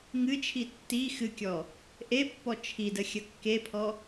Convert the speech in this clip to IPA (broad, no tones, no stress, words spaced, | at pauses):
ŋɨt͡ʃʰi tːi xɨkʲɔ | ʔepːɔ t͡ʃʰidə xʲəkːepʰɔ